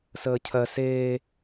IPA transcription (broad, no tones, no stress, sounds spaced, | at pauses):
s əː cʰ ɜ s eː